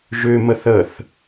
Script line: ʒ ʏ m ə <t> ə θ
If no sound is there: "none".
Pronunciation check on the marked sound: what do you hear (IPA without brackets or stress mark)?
θ